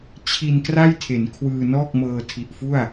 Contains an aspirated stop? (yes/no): yes